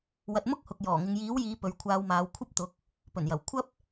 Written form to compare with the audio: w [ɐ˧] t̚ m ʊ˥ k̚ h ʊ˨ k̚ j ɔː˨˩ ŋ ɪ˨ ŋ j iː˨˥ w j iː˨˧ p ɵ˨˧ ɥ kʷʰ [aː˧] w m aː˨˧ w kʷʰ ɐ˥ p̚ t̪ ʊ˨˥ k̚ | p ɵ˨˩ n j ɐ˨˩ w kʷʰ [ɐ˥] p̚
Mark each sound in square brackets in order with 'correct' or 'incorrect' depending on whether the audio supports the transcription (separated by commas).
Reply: correct, correct, correct